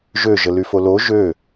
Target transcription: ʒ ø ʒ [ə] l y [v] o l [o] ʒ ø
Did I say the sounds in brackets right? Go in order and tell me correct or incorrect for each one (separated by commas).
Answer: correct, incorrect, correct